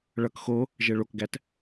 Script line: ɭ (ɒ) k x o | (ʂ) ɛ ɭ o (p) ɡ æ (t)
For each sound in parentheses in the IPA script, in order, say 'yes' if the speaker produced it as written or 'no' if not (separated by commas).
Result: no, no, no, yes